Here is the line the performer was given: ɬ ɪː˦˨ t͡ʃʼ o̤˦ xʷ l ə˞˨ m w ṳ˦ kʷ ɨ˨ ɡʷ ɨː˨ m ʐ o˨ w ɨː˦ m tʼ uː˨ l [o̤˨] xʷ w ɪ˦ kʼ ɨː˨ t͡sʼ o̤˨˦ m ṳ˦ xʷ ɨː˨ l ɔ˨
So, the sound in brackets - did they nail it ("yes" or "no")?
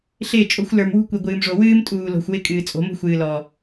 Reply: yes